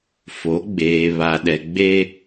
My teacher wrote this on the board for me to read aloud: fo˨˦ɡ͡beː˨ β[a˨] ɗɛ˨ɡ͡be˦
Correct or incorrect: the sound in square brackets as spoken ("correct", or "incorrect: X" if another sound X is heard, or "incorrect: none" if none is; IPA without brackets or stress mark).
correct